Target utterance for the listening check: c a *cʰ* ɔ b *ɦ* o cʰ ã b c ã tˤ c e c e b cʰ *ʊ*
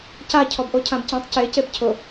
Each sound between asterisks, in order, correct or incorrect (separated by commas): correct, incorrect, correct